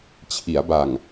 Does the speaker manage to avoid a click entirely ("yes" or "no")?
yes